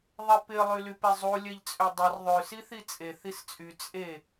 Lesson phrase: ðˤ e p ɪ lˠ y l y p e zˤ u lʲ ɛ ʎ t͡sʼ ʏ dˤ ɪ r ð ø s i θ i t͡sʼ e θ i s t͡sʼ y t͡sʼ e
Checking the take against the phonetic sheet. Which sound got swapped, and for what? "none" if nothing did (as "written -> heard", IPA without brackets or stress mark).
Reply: ð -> ðˤ